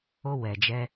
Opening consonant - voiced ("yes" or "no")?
yes